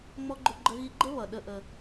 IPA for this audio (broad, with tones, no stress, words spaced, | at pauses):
ŋ͡mɔ˦ɡ͡ǃʊ˦ɡ͡ǃə˦ɣi˦ ɡ͡ǃə˦βʌ˨ ɗə˦ʔə˦